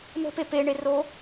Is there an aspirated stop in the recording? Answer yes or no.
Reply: no